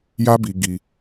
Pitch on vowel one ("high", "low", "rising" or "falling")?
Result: high